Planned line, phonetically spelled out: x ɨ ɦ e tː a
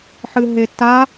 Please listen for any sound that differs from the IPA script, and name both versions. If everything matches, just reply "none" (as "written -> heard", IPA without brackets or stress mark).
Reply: x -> ħ